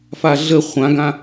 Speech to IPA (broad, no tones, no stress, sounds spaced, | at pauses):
f a ɮ ə χʷ ã ɡ ã